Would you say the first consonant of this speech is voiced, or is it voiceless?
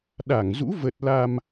voiced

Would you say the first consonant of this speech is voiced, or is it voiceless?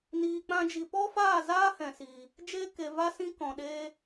voiced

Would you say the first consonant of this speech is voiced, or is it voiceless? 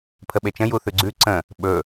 voiceless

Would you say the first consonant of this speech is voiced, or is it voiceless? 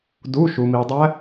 voiced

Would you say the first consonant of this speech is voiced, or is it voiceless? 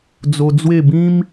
voiced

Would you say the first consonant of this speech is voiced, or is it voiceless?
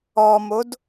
voiced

